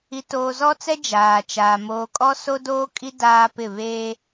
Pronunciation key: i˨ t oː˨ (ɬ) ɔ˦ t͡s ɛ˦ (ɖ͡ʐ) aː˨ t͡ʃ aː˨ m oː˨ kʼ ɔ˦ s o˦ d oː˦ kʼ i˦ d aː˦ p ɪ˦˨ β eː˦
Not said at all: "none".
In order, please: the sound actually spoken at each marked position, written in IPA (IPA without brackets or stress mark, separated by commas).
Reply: z, d͡ʒ